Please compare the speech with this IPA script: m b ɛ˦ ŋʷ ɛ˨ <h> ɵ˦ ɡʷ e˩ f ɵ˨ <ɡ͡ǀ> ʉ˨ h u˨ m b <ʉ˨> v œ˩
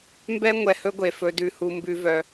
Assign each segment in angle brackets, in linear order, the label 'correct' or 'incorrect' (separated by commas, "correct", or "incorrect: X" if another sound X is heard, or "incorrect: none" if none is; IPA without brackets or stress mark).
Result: correct, incorrect: d, correct